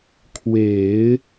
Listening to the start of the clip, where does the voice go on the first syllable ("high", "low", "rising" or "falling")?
low